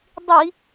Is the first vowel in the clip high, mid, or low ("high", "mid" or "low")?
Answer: high